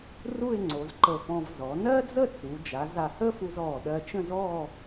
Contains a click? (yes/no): yes